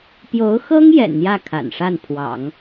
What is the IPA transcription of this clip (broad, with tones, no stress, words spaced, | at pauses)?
pjo˧˥ʊ̯xɤ˥ŋ jɛ̰˨˩nn̪jä˥˩ kʰa̰˨˩nʂa˥˩npʰwɑ̰˨˩˦ŋ